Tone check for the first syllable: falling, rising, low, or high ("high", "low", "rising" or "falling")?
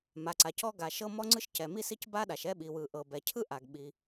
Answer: low